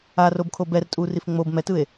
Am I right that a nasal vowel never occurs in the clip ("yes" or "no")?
yes